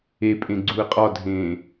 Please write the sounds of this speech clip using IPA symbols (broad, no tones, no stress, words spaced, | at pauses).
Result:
epʼẽ ɡ͡ǀuə̯qʼɒdʱẽː